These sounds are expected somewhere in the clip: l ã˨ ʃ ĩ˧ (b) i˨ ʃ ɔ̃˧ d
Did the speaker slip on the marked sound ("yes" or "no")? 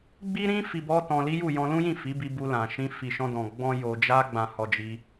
yes